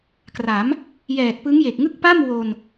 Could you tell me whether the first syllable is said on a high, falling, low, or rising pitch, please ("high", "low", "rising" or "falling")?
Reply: rising